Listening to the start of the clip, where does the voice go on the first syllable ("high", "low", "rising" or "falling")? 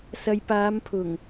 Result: low